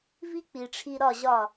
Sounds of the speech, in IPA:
v i˦ k͡p i˨ ʈ͡ʂʰ i˧ ɾ ɒ˦˨ ʑ ɒ˦˨

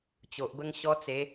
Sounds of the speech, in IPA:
t͡ɕ o˨ ʔ b ə˦ ŋ ɕ ɔ˦ t͡s e˨˦

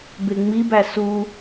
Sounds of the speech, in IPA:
b e ŋ͡m i b æ s u

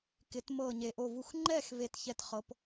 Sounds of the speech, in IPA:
k ɪ˩˧ t m ɤ˧˩ ɲ e˩ ʔ o˧˩ v u˧˩ x ŋ͡ǃ ɛ˥˨ x v e˧˩ t ç ɛ˧˩ t χ ɤ˩˧ p

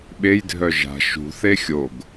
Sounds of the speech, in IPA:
ɓ e j dʱ œ ʒ a̤ ʃ ṳ θ e xʲ o ɡ

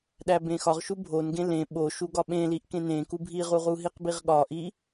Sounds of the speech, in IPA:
ɗ æ b ẽ x ɒ ʁ ʃ u bʱ o n ɡ ẽ l ẽ ɓ o ʃ u ɡ ɒ ɓ ẽ l i ʔ k ẽ n ẽ k u bʱ i ʁ u ʁ u ɦ i q b i ʁ ɠ ɒ ʔ i

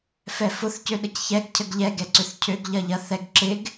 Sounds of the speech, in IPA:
f ɛ f ʊ θ c ø ɗ ə c ç ɛ ɡ cʰ ə ɡ ʎ ɛ ɡ ɛ ǀ ʏ θ cʰ ø ɡ ʎ ɐ ʎ ɐ θ ɛ ɡ ǁ ɪ ɡ

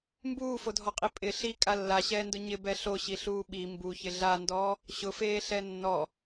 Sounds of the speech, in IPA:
m b uː f o dʱ ɔ qʼ i pʼ ɪ ɬ i kʼ a lː a ɕ ɛː n d ʊ ɲ ɪ b ɛ ɬ o ɕ i ɬ uː ɓ i m b u ç ɪ ɮ a n d ɔː | ɕ ʊ f eː ɬ ɛ nː ɔ

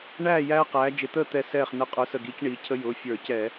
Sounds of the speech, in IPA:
ɳ æː˥˨ j æː˦ q æː˨˦ d͡ʒ ɪ˧˩ t̪ əː˥˨ t̪ ɛ˥˨ s ɛː˥˨ χ n ə˧˩ qʼ ə˞˨˦ s ə˧˩ ɡ iː˨˦ c ɳ iː˨˦ cʰ ə˦ j ʊː˩˧˩ fʲ ə˞˧˩˧ c ɛ˧˩˧

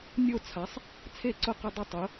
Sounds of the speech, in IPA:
nʲ o˦˨ t͡sʰ a˨˦ sˤ | t͡sʰ e˦˨ ǀ ʊ˦˨ q ɪ˦˨ dˤ ɪ˦˨ tˤ ʊ˨˦

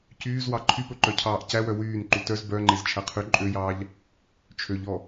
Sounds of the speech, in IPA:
c yː z w ɑ ǃʰ y p ɵ ǃ œ cʰ ɑː ʔ c æ w œ w yː n ǃ u t œ z b œ ŋ͡ǃ e z t͡ʃʰ æ qʰ y ǃʼ ø j ɑː ʎ | t͡ʃʰ ø ʎ ɔ

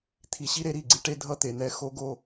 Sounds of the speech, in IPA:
t̪ʰ i˨ ɕ i˦ ɾ e˨˦ ɾ i˦˨ ɡ͡ǀ i˦ ʈ e˦ dʱ ʌ˦ t̪ e˨ n̪ ɛ˦ x o˦ ɡ o˦

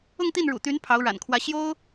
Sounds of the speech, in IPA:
ʊ˥˧ ŋ t̪ i˥˩ n ɻ ṵ˨˩ t̪ y˧˥ n pʰ ɑ˧˥ ʊ̯ ɻ a̰˨˩ n kʰ w ä˧˥ ɕ j o˥ ʊ̯

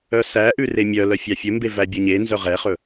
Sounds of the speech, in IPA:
œ s æ ʔ ʉ r e mʲ œ l œ fʲ ɑ fʲ ɵ m b e v æ bʲ ɵ ɲ e n z œ ʁ ɛ χ ɵ

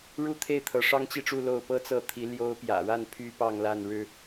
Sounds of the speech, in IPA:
ɻ u˥˧ t̪ʰ e˥˩ ɪ̯ t̪ʰ ɤ˧˥ ʂ ɑ˥ ŋ t͡ɕ i˥˧ ʈ͡ʂ u˥˧ l o˥˩ ʊ̯ p ɤ˥ t͡s ɤ˥˩ t̪ʰ i˧˥ l j o˧˥ ʊ̯ p j ä̰˨˩ ɻ a˥˩ n pʰ y˥ p ɑ˥˧ ŋ l a˥˩ n ɻ ɻ̩˥

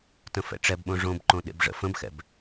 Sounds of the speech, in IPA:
t ə̃ f ɛ̰ ʈ͡ʂ ɛ b ɓ õ ʐ õ b ǃ õ ɗ ḛ b ʐ ə̰ f ə̃ b x ɛ̰ b

